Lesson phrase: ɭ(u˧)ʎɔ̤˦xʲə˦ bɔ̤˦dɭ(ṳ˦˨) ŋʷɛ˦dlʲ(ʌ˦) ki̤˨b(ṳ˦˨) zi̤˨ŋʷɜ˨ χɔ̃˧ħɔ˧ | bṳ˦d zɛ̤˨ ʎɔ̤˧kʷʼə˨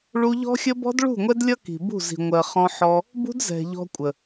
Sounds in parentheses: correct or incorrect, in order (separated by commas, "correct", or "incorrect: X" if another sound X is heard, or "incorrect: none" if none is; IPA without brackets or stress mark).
correct, correct, correct, correct